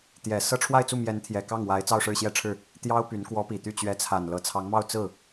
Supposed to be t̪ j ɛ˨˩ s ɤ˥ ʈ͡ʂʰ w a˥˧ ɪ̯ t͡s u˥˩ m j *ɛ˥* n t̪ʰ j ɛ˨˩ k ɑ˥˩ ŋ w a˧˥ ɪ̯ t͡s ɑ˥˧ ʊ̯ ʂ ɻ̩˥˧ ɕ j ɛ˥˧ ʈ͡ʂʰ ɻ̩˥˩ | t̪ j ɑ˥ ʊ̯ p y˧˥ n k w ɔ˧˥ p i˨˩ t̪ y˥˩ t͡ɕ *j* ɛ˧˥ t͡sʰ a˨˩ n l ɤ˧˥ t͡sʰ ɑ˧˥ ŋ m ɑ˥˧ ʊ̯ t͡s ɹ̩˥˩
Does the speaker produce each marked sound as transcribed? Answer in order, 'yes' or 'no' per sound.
no, no

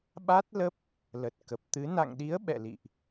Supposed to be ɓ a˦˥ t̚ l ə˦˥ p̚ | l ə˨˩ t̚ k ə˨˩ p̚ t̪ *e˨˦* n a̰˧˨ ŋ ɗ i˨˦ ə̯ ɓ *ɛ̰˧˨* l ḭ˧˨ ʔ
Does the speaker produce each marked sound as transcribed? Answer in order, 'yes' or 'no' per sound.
no, yes

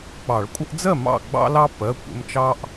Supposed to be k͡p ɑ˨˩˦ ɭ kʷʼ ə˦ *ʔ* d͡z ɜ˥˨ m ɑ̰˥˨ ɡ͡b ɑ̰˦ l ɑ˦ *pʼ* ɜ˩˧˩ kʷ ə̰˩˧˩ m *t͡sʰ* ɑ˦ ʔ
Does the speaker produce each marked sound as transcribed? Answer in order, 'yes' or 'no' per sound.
yes, no, no

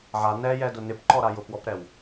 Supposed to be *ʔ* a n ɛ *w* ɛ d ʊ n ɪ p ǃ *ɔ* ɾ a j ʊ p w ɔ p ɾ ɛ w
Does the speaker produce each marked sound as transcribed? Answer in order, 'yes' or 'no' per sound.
no, no, yes

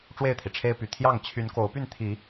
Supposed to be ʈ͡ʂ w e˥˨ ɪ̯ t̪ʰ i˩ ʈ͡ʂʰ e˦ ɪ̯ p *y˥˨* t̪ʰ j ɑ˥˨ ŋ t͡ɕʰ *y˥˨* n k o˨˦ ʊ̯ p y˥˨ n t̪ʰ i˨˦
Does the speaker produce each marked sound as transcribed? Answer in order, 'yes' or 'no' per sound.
no, no

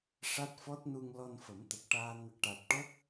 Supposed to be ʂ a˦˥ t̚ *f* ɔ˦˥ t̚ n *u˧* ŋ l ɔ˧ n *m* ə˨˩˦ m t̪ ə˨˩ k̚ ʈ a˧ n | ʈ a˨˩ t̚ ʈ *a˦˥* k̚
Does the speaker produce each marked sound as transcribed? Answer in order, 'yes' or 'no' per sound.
yes, yes, no, no

